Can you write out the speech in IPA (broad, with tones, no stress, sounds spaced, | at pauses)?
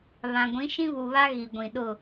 β ã˨ ɡʷ ĩ˨˦ ʃ ĩ˦ β u˨ β a˦ ɣ i˨ ɡʷ ĩ˨ ɗ ʊ˦˨